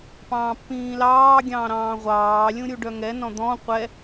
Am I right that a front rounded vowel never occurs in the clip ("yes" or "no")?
no